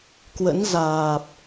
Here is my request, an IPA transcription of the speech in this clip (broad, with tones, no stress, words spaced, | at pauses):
kwə̰˧˥n zaː˨˩p̚